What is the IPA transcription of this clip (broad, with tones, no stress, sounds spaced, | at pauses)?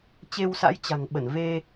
t͡ɕ e˧ w s a̰˧˥ j t͡ɕ a̤˨˩ ŋ ɓ ə˧˩ n v e˧